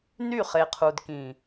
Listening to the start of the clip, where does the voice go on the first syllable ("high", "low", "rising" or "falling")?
falling